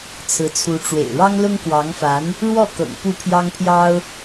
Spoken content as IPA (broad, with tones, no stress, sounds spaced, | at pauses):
t͡sʰ ɹ̩˧˥ t͡sʰ u˧˥ ʈ͡ʂ w ḛ˨˩ ɪ̯ ɻ ɑ˥ ŋ l ʊ˥ ŋ k w ɑ˧˥ ŋ f a˧˥ n | ɻ w ɔ˥˩ k ɤ̰˨˩ ŋ p u˥˩ pʰ j ɑ˥ ŋ pʰ j ɑ˥ ʊ̯